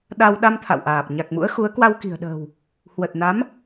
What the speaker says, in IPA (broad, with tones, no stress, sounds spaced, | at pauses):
ɗ a˧ w ɗ a˧ m t̪ʰ a̰˧˨ w ʔ aː˨˩ p̚ ɲ a˨˩ k̚ m ṵ˧˥ ə̯ x u˨˦ ə̯ k w a˧ w k i̤˨˩ ə̯ ɗ ə̤ː˨˩ w | h w ə˨˩ t̚ n a˨˦ m